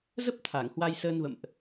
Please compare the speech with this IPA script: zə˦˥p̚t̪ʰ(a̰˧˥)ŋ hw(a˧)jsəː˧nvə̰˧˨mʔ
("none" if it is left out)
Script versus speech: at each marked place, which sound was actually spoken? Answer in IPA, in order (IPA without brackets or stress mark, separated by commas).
a˧˩, a˧